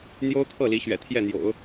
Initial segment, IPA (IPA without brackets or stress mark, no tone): n̪